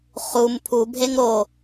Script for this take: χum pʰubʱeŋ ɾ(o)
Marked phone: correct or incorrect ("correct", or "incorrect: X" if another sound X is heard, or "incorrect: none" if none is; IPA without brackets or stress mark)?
correct